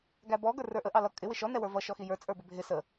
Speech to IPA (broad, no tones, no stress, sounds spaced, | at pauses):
ɡ æ b ɔ ɡ ə˞ r ə˞ ʔ ə ʔ ɑ l ʌ kʼ ɪ w ɪ ʃ ɔ n ɛ w ə˞ v ʌ ʃ ɔ x i j ə˞ t͡sʼ ə˞ b ɪ bʱ ɪ s ə